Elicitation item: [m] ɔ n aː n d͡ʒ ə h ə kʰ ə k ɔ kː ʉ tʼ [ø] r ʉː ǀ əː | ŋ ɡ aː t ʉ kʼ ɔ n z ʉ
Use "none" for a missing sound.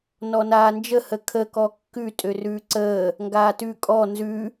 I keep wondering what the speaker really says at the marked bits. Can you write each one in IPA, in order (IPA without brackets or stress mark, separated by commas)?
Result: n, ø